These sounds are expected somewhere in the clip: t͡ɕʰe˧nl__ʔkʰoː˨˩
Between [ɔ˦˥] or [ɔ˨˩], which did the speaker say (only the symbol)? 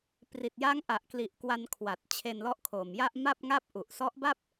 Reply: ɔ˦˥